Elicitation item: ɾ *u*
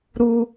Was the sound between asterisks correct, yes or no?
yes